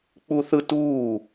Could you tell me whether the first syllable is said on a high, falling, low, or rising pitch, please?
high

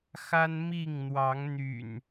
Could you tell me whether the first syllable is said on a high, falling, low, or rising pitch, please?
high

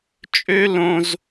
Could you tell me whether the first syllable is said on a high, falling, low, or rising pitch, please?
high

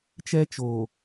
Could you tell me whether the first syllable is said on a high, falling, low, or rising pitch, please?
high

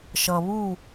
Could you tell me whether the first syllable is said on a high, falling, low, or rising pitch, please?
low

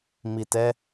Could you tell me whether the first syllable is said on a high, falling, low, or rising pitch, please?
low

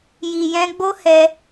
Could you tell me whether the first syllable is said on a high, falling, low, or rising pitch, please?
low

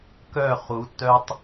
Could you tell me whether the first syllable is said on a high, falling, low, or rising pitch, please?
falling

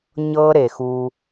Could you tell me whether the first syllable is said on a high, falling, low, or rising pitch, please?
high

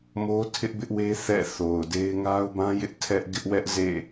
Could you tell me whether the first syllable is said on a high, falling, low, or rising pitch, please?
high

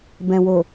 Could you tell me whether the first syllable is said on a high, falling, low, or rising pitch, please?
low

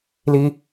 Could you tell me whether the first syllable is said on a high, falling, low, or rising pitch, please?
high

